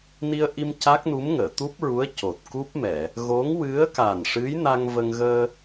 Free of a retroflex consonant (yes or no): no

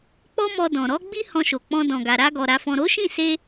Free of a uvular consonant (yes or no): yes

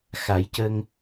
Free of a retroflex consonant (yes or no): yes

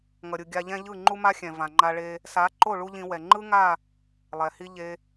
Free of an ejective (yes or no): yes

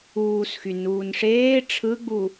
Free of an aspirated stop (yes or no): no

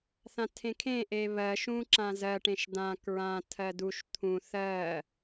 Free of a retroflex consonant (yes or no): no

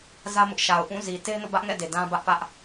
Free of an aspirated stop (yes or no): yes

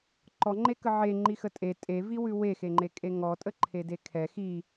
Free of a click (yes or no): no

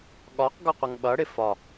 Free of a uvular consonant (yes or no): no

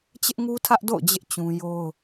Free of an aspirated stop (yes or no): no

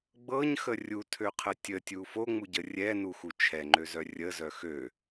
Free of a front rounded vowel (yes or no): no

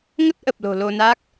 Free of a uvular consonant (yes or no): yes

